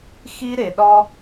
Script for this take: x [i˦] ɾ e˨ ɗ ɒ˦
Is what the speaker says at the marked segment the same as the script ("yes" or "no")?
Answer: yes